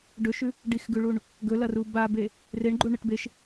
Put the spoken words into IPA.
ɖ ɵ ʃ ʉ | ɖ i x ɡ ʉ ɭ u ɳ | ɡ ɵ l ɐ r u b a b e | r e ɳ ɡ͡ǃ u ɳ ɨ ʈ b e ʃ

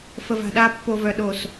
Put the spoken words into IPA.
f ə˨ v a̤˨ ɗ a˦˨ pː o˨ v œ˨ ɗ o˨ s

